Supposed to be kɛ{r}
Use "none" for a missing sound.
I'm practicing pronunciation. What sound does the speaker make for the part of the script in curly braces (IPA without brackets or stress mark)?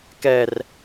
r